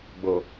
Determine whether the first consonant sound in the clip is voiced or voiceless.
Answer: voiced